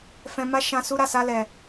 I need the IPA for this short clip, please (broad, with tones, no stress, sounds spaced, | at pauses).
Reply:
f ɛ̃˧ m a˦ ʃ ã˦ s u˦ ɾ a˦˨ s a˧ l ɛ˨